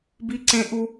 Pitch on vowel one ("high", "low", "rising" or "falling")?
high